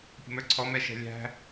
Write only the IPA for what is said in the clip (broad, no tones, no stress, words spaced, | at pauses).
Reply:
pʲə̤mə˞ǀʰɔ mɛʃɛ̤lʲæ̤